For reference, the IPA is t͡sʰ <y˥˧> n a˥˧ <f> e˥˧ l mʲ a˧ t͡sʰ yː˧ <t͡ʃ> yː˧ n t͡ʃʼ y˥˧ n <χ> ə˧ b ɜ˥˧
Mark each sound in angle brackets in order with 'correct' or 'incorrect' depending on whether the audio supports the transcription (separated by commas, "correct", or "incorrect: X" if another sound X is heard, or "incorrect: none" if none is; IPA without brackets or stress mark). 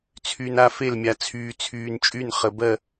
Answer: incorrect: y˧, correct, incorrect: t͡sʰ, correct